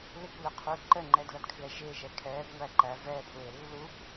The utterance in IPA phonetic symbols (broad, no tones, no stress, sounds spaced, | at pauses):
l ɪ kʷ l ə qʰ u ǃ ə ŋ͡ǃ ɛ d l ʌ d kʰ l ɛ ʒ ɪː ʒ ɛ kʰ ɛː b ŋʷ æ ǃ æ v ɛː pʰ ɹ ɪː lː u kʷ